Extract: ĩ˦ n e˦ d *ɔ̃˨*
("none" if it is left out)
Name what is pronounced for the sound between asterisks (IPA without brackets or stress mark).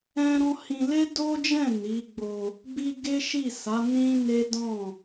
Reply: ɔ̃˦˨